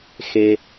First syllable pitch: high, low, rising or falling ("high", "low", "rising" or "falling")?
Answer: low